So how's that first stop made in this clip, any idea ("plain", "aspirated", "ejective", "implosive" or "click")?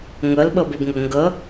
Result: implosive